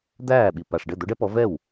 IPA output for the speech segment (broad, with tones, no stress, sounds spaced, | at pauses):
d̪ æː˥˩ ɓ i˨˩ p a˨˩ ʂ ɖ ɘ˥˩ d̪ o˨˦ ɖ ɛ˦ p ɔ˨˦ v ɛ˥˩ w